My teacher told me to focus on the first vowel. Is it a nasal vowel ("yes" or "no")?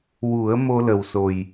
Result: no